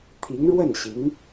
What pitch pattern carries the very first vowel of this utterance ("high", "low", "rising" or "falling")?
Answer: rising